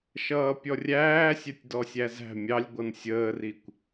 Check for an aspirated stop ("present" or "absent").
absent